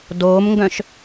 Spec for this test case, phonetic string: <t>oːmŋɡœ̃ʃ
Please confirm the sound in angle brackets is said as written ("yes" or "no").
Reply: no